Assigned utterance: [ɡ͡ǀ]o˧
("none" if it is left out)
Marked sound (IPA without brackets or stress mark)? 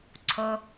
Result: ǀʰ